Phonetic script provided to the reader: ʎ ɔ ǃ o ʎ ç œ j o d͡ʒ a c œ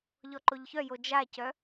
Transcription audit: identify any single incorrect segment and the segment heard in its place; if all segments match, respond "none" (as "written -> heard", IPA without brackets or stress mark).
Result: none